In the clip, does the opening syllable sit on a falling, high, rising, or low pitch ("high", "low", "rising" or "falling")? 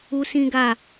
high